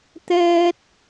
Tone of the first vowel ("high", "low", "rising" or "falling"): high